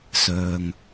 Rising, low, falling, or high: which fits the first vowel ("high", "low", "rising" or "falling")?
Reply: low